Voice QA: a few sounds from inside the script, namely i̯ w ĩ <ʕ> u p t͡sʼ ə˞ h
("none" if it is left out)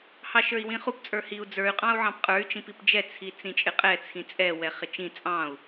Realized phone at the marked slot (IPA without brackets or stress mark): χ